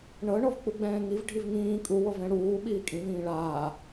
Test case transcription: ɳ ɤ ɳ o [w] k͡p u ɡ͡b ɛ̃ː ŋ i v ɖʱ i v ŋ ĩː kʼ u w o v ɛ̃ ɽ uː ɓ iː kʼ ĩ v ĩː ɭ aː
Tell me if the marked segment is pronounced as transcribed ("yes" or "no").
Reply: no